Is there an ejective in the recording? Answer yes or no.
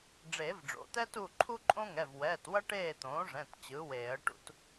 yes